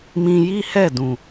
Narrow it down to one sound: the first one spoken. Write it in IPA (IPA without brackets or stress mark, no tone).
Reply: m